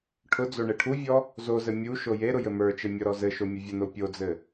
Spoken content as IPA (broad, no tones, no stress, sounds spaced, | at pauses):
ʈʰ ʊ d͡z o ɳ e ʈʰ u vʲ ɔ | z o z ɘ mʲ u ʃ o j e ɾ ʊ j ɘ m ə˞ t͡ʃ ɘ mʲ ɔ ɾ ɔ z ɘ ʃ o mʲ ə vʲ ə n o pʲ o d͡z ɘ